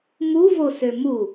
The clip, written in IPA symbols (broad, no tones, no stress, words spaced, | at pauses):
muvosø mu